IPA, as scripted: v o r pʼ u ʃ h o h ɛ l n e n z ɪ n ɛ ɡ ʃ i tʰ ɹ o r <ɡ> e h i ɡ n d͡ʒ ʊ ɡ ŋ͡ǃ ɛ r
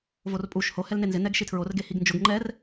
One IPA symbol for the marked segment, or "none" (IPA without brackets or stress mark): ɡ